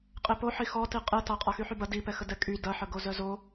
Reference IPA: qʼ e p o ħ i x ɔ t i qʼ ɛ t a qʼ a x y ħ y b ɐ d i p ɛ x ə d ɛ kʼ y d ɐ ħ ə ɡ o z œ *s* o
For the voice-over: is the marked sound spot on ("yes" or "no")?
no